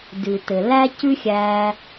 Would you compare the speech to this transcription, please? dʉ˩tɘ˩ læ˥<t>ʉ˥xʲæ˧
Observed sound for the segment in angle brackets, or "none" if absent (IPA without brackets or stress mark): c